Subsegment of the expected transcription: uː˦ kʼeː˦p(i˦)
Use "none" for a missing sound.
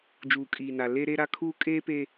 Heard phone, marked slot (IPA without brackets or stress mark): e˦